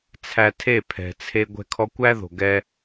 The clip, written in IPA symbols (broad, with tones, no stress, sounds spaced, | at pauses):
t͡sʰ æ˧ tʰ e˦˨ pʰ ɛ̤˨ t͡sʰ e˧ ɡʷ ɛ̤˧ kʰ ɔ˧ kʷ æ˦ ð o̤˨ ɡ ɛ˦